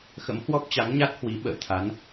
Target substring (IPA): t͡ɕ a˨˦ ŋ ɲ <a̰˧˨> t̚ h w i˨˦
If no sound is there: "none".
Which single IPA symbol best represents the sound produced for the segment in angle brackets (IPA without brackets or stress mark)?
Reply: a˦˥